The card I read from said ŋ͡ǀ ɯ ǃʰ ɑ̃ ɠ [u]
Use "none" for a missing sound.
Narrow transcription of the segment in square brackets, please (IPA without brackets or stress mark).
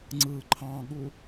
u